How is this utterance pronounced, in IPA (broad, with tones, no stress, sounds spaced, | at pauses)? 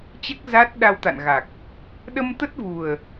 t͡ɕ ɛ˦˥ k̚ z aː˦˥ t̚ ɗ a˧ w t̪ a̰˧˨ n ɣ a˨˩ k̚ | ɗ ə˧ m t̪ ə˦˥ t̚ v u˨˩ ə̯